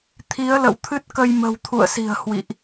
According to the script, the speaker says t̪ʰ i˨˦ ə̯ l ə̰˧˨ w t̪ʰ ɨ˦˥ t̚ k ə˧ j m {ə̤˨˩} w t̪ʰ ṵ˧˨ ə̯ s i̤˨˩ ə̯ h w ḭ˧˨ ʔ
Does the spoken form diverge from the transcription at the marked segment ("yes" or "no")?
no